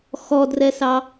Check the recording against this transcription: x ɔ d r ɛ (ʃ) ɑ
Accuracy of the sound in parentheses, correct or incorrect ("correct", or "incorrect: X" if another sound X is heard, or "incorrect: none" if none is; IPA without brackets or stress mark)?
incorrect: s